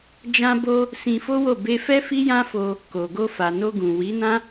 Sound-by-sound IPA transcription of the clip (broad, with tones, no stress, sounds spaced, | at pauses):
d͡ʒ ã˧ b o˧ | s ĩ˧ f o˦ w o˦˨ b e˧ f ɛ˦ f i˦ j ã˦ f o˧ | k o˨ ɡ o˧ f a˨ n o˧ ɡ ũ˨ w i˨˦ n ã˦